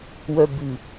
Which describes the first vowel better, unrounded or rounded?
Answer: rounded